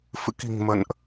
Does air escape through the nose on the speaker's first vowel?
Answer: no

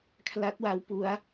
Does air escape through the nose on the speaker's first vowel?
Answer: no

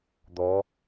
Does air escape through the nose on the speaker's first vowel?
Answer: no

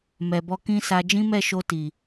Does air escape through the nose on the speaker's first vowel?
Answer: no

